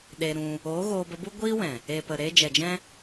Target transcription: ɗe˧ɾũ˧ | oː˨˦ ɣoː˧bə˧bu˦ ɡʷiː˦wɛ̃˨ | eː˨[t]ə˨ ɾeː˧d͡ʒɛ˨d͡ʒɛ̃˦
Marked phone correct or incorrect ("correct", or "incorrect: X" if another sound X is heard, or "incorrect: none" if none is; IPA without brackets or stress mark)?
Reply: incorrect: p